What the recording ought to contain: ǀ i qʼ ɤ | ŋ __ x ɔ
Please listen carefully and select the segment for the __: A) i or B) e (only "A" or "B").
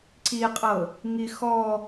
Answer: A